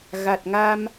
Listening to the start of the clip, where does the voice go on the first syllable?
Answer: low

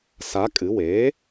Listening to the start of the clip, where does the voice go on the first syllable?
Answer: rising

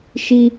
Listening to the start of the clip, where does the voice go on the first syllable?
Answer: high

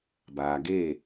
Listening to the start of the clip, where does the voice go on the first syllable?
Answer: low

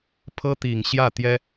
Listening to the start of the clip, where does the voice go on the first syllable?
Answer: high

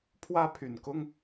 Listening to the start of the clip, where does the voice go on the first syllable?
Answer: high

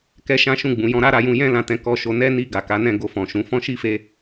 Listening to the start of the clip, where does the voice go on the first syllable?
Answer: high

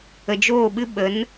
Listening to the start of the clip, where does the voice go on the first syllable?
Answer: low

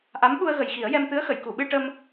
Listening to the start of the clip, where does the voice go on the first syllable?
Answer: rising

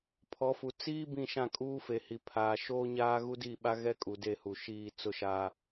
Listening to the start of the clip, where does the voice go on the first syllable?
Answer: rising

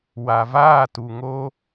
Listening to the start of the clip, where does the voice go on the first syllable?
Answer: low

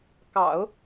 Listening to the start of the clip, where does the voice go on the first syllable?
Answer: low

